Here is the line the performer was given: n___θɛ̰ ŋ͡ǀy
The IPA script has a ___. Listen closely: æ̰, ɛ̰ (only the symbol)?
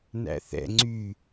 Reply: æ̰